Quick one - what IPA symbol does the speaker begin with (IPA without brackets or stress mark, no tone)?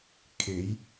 kʰ